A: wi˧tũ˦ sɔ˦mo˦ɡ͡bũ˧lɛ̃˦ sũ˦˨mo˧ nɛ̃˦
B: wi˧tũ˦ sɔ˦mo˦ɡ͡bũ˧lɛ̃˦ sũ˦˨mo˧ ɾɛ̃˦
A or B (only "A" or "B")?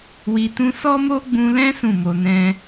A